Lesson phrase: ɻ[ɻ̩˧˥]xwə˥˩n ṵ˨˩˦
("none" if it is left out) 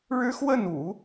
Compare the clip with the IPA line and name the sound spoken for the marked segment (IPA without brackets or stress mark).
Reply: ɻ̩˥